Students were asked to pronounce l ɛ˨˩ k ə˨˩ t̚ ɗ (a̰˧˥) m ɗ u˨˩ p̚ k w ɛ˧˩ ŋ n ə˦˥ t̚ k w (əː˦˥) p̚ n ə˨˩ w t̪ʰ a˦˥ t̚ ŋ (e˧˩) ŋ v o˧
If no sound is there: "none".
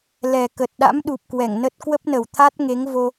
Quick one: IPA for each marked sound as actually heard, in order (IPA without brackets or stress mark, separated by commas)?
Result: a̰˧˥, ə˦˥, e˨˦